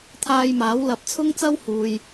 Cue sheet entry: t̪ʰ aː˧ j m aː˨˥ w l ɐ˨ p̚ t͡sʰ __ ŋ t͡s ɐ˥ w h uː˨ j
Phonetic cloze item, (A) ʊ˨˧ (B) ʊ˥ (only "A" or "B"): B